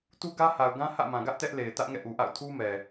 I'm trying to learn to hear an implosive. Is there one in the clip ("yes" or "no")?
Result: no